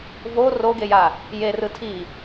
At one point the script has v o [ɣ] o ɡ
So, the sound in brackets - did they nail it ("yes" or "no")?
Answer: no